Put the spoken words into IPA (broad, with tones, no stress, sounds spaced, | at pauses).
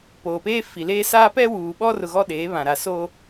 p oː˨ p eː˦ f i˨ l eː˦ s aː˦ p ɛ˦ w uː˨ ɓ ɔ˦ r ʊ˨ ɣ ɔ˦ ɗ eː˨˦ β ã˨ ɾ a˨ s oː˦